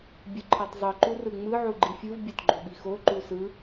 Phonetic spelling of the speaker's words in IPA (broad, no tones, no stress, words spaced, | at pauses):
bʲɯǃʰɤtˤzˤɯ ǃurɯŋ͡mɯ ʕuɡ͡ǃifʲɯv bʲotɡ͡ǃoɓixo ǃusɯ